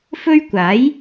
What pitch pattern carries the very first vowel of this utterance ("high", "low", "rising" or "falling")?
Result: high